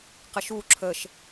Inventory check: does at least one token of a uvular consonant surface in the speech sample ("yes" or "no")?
yes